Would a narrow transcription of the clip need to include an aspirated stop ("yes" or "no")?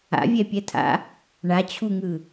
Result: yes